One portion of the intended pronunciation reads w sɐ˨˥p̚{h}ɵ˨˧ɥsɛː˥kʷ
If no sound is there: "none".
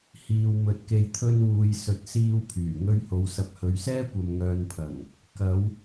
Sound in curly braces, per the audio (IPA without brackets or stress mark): h